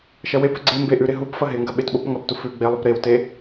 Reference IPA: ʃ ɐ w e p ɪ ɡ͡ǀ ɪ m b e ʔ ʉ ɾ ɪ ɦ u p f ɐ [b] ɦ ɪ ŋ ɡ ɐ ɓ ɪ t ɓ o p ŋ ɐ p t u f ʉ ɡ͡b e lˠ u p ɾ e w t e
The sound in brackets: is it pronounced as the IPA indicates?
no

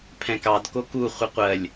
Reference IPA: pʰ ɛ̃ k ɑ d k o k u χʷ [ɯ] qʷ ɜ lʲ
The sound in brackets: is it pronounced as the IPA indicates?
no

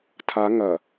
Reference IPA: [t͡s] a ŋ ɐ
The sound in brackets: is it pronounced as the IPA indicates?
no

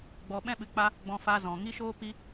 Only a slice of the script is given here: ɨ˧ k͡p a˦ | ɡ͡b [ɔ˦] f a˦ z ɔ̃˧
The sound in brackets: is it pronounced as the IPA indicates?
no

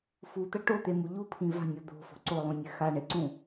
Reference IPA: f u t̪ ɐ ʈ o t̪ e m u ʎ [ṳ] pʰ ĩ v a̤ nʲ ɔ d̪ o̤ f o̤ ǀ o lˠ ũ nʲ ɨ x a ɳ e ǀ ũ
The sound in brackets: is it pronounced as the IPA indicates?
no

